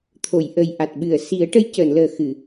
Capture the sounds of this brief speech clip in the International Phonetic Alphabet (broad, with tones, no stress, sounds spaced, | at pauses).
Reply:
t̪ʰ o˨˩˨ j ʔ ə˨˩ j ʔ a˨˩ t̚ ɓ ɨ˨˩˨ ə̯ s i˨˩˦ ə̯ ʈ ə˧˥ j c əː˨˩˨ n l əː˨˩ x ɨ˨˩˨